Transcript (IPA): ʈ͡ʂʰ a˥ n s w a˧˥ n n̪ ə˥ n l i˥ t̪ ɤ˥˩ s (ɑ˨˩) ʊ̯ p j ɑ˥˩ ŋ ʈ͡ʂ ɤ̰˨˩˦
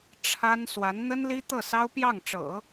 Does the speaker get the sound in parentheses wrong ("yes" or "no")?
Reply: yes